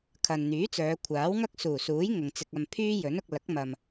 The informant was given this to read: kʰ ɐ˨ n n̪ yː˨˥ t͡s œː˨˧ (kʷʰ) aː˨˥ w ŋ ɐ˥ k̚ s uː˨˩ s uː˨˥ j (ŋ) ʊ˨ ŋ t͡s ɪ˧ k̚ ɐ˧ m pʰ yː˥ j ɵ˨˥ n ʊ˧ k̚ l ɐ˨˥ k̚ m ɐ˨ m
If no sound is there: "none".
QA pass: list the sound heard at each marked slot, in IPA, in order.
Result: kʷʰ, ŋ

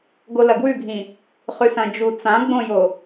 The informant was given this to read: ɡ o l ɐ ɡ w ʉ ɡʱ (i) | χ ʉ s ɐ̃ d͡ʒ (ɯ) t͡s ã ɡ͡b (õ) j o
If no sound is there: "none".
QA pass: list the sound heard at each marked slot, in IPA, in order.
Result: ĩ, u, õ

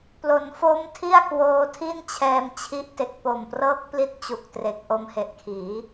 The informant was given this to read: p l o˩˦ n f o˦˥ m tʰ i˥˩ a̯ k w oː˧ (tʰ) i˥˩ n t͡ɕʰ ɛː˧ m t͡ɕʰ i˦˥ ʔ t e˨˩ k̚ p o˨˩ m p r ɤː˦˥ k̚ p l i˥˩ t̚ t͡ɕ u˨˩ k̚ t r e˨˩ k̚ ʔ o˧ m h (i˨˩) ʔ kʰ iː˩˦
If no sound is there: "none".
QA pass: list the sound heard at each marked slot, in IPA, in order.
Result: tʰ, e˨˩

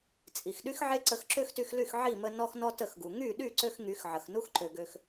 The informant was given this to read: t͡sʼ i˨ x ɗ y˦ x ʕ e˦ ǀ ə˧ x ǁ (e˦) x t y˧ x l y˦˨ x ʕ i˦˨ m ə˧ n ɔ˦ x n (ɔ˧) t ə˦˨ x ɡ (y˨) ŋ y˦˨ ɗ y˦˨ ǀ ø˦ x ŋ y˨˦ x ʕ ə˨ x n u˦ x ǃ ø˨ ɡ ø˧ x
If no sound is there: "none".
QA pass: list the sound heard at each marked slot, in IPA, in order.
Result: ø˦, ɔ˦, u˨

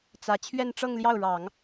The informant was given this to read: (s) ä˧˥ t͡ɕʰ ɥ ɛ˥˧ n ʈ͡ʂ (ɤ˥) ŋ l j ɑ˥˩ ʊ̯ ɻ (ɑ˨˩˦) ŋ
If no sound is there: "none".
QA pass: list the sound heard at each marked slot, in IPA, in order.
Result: t͡s, ɤ˥˧, ɑ˨˩˦

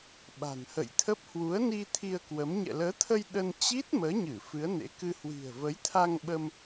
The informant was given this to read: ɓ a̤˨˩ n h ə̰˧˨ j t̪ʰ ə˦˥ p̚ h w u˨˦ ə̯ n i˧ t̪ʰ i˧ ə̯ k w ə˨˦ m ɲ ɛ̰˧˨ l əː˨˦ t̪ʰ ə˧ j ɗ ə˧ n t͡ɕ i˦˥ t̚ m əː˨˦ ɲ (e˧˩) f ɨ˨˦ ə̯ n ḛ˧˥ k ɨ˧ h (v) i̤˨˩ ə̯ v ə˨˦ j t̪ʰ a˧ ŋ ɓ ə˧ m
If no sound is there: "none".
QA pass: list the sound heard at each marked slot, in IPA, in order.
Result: ɨ˧˩, w

